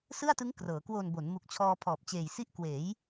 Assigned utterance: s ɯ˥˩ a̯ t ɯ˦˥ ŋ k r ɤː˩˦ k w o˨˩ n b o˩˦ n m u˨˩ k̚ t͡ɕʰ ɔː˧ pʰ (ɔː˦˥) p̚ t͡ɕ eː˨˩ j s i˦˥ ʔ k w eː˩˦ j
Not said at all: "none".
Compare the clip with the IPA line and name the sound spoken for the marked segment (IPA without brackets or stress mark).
ɔː˨˩